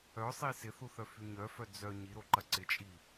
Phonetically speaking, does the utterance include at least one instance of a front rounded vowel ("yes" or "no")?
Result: yes